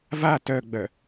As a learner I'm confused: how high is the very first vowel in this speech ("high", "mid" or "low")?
low